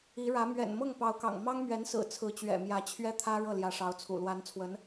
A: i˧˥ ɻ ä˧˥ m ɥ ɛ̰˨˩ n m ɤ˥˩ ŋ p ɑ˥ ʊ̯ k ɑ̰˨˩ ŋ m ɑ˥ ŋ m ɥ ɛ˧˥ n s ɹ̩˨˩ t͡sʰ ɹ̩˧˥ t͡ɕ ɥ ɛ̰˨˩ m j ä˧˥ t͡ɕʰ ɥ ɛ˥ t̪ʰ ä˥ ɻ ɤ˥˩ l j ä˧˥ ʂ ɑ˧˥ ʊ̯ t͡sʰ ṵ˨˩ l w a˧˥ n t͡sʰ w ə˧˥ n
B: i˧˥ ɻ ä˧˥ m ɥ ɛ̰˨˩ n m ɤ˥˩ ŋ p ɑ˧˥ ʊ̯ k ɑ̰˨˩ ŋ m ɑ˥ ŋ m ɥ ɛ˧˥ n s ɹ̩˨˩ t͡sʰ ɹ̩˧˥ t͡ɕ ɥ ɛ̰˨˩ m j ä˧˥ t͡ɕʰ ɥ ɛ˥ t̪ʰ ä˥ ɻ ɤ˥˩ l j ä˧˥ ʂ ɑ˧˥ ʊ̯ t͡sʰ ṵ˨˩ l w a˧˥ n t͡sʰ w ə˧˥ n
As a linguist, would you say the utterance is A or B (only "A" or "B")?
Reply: B